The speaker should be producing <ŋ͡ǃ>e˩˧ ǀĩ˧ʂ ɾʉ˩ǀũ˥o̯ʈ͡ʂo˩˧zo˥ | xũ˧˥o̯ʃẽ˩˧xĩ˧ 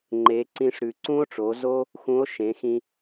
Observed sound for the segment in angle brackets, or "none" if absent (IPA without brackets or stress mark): ŋ͡ǃ